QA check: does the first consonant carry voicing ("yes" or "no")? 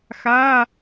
no